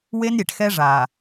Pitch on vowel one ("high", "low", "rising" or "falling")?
high